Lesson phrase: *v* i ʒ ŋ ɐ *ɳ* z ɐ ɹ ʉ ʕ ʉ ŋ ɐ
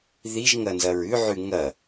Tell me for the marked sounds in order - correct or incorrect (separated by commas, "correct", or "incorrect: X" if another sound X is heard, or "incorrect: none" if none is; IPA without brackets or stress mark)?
incorrect: ð, incorrect: n